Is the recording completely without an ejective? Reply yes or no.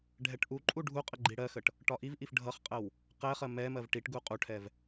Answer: no